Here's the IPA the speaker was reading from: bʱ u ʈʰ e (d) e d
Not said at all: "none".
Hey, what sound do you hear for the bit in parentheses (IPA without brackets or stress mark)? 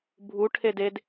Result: d